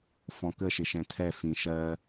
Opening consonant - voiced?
no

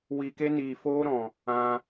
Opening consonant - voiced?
yes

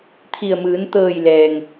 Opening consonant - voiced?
no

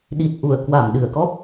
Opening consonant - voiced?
yes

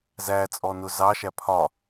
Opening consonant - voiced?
yes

